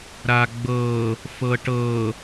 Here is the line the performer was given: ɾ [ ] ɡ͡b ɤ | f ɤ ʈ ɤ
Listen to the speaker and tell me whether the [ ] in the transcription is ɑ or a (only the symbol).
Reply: a